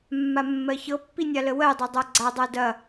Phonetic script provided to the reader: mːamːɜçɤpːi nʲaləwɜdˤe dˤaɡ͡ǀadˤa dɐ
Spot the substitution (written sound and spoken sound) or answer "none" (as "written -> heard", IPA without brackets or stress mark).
none